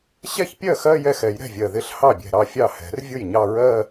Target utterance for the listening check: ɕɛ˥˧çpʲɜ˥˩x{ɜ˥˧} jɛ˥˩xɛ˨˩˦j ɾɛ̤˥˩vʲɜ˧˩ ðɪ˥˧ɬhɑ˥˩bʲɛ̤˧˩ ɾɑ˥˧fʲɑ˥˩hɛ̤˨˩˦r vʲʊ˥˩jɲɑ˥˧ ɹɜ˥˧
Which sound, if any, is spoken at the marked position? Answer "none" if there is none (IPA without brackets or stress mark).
ɜ˥˧